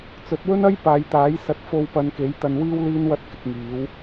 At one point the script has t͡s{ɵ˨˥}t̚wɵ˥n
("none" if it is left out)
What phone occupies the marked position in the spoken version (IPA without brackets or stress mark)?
ɵ˨˥